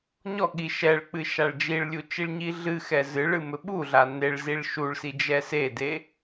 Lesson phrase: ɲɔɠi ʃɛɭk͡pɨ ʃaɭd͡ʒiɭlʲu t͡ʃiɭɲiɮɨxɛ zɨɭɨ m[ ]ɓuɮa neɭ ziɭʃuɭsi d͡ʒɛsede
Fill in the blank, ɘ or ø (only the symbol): ɘ